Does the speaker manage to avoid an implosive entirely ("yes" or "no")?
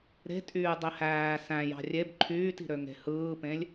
yes